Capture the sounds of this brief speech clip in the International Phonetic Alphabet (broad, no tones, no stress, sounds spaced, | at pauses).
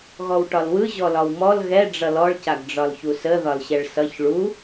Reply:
ɣ ɔ w ʈ ɒ l w ɯ ʑ ɔ l ɒ w m ɔ l ɣ ɛ ɖ͡ʐ ʌ l ɔ ɭ c a ɡ ɖ͡ʐ ɒ l ç u s ə ð ɒ l ɕ ɛ ɭ s ʌ ç ɭ u